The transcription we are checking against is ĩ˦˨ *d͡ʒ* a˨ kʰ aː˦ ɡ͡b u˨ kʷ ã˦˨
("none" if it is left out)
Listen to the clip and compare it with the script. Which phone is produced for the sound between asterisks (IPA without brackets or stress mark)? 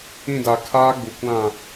d